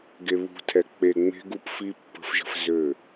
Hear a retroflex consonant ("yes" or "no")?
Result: no